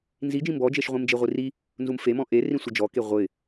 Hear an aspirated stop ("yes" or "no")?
no